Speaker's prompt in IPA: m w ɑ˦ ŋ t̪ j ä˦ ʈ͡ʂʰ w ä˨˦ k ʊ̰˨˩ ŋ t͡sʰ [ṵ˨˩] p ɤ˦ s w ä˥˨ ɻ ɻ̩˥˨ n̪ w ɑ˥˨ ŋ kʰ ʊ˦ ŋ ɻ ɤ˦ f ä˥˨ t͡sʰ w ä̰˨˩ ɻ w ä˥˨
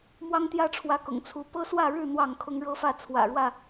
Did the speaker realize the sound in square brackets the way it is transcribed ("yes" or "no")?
no